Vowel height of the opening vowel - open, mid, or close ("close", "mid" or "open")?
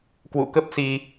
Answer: close